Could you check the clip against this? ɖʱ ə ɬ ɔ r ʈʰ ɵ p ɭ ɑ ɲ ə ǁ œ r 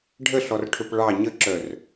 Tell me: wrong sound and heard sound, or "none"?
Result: none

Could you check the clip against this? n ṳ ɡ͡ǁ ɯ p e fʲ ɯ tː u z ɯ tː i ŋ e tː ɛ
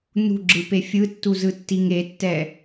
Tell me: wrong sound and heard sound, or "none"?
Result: none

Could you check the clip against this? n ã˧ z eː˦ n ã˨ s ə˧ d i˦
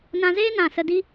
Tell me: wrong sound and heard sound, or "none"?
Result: none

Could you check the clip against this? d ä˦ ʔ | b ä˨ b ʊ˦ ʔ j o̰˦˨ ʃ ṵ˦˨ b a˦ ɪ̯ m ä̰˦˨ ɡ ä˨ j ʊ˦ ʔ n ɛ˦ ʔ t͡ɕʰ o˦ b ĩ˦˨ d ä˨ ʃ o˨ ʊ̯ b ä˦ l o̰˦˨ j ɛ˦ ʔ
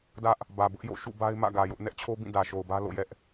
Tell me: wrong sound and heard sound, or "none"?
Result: none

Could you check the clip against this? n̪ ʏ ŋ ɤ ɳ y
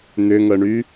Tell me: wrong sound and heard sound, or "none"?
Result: none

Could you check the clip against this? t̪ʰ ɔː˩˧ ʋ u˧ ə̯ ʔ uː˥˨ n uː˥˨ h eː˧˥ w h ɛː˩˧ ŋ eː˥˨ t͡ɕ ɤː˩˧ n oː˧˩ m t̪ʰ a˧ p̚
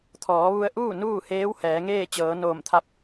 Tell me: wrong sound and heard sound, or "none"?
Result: none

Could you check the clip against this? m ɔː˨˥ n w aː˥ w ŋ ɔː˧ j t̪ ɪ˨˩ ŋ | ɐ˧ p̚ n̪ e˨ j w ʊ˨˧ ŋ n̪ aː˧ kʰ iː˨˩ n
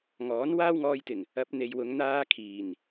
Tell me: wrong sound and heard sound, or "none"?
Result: m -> ŋ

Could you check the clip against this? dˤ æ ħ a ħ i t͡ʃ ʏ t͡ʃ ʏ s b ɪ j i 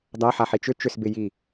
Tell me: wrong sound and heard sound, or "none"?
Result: none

